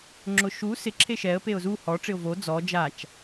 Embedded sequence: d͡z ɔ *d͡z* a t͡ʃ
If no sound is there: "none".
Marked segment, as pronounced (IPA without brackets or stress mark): d͡ʒ